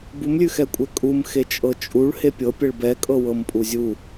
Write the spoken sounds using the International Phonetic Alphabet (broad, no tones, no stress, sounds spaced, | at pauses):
b u m lʲ ʉ x ɛ kʷʼ ɛ kʼ u m x e t͡ʃʼ ɤ t͡ʃʼ u ɭ h e pʲ ɤ pʲ ɛ ɭ b ɛ kʼ ɤ w ɤ m pʼ u zʲ u